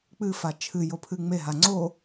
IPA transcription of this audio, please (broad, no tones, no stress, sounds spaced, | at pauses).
k͡p ɨ f a t͡ʃʰ ɨ j o pʰ ɨ ŋ͡m e ɦ a ŋ͡ǀ o